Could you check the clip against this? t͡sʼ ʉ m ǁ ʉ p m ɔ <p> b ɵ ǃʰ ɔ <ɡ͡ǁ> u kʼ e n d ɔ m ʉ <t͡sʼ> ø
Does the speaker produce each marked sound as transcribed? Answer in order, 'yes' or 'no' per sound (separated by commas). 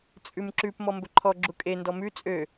no, yes, yes